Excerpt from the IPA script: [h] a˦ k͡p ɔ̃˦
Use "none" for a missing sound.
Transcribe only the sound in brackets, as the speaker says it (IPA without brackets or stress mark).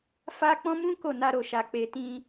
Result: f